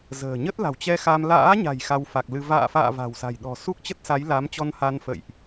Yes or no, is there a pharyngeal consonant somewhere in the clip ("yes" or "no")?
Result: no